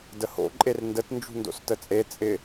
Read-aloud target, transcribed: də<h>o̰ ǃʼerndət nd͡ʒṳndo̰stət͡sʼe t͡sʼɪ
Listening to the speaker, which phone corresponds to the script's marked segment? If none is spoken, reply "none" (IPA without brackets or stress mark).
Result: h